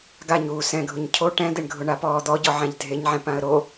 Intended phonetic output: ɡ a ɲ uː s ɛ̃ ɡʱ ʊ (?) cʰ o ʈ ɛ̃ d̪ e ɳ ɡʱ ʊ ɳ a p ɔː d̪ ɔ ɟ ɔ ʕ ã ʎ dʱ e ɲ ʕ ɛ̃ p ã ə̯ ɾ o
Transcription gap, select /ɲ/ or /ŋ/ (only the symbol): ɲ